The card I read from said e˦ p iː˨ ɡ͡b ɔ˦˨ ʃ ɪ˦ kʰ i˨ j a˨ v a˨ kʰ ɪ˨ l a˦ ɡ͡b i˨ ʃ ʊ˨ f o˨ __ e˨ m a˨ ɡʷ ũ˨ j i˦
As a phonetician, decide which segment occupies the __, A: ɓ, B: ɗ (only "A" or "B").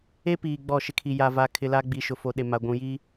B